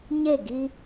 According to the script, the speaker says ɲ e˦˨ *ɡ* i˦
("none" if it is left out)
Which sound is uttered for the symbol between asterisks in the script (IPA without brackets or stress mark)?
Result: ɡ